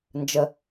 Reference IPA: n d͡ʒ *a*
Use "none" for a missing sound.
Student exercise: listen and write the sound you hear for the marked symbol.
ə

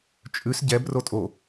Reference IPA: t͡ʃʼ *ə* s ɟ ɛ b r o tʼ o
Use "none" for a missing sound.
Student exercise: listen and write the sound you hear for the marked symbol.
ʉ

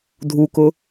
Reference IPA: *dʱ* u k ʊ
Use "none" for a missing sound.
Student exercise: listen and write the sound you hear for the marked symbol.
dʱ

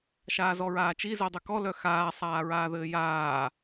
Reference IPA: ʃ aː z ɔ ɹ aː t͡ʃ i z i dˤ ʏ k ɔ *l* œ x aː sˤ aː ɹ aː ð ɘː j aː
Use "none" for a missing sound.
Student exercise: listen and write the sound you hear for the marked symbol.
l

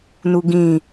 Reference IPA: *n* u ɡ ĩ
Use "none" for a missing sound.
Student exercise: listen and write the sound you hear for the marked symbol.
n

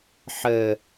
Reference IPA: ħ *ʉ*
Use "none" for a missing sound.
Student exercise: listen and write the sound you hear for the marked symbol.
ɘ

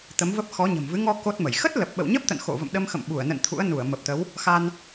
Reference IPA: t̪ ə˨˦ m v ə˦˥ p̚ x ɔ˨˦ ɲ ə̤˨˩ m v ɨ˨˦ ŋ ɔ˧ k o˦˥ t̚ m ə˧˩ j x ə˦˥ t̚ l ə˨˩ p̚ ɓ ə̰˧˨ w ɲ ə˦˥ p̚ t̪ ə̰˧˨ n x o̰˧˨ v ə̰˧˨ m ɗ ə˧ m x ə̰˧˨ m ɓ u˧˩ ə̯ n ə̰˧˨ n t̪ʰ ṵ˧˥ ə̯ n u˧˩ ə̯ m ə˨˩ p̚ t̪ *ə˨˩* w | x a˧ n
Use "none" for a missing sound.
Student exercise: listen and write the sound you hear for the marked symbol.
ə˨˦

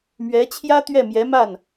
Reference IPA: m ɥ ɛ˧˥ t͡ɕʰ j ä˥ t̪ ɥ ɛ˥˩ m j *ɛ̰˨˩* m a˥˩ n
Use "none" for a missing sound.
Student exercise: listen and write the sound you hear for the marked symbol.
ɛ˧˥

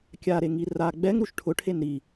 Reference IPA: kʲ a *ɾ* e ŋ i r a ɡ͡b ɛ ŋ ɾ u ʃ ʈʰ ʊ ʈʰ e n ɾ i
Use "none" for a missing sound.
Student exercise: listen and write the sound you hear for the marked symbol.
ɾ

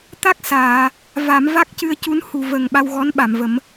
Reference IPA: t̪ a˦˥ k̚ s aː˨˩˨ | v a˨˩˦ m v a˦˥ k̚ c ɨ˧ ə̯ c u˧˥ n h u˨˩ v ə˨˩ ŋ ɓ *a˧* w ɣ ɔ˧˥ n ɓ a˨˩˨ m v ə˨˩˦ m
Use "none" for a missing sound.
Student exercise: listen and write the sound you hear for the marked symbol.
a˧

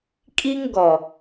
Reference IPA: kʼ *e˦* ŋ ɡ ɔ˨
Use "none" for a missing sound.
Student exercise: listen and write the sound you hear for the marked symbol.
i˦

